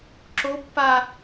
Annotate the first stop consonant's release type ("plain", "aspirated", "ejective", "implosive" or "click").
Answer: click